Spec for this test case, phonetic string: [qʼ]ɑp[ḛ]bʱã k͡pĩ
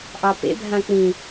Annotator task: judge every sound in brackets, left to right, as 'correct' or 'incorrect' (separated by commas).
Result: incorrect, correct